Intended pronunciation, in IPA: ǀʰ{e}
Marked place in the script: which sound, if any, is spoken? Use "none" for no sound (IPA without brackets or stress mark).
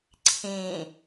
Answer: ẽ